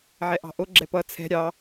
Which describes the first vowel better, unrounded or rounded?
unrounded